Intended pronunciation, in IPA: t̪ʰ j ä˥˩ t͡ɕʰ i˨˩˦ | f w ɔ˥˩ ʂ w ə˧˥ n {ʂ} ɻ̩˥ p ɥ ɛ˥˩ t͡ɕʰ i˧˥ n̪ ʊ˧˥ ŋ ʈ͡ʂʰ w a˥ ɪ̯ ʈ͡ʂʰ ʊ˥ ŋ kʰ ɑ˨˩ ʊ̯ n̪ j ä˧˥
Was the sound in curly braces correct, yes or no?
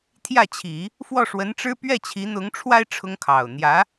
no